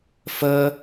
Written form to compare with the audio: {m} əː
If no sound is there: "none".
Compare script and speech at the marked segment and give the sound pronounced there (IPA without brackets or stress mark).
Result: f